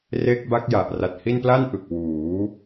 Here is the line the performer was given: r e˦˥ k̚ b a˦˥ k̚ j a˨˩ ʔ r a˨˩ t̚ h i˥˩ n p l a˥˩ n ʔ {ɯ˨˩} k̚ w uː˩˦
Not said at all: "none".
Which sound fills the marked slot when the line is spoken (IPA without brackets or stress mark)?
ɯ˨˩